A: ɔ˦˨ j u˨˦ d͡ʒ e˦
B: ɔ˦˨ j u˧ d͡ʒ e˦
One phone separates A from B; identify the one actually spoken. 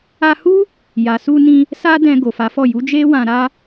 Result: A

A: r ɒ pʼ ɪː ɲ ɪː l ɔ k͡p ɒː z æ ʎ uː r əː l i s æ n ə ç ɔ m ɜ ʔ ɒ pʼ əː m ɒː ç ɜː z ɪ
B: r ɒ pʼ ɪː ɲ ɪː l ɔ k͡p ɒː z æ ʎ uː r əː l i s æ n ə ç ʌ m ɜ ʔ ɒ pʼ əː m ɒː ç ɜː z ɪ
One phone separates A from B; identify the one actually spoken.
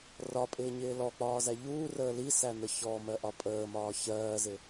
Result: A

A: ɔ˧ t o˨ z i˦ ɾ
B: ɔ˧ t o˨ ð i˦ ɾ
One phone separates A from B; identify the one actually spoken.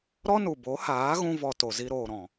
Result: A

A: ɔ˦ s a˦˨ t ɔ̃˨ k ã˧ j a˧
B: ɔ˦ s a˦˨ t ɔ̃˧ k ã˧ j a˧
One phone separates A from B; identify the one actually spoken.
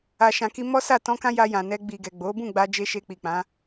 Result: B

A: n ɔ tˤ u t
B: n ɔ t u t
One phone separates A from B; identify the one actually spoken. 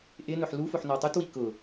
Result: A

